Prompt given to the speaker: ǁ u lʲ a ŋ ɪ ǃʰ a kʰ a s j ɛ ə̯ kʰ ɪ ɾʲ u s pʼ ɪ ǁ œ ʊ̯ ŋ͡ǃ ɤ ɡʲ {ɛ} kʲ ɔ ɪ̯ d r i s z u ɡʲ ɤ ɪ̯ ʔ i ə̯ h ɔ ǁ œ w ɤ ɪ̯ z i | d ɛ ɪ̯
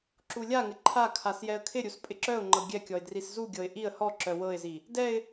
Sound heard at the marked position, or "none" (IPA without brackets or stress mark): ɛ